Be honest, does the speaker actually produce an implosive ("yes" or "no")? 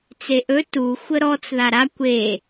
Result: no